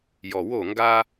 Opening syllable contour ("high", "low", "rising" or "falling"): low